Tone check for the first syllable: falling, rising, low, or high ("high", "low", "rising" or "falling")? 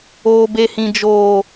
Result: high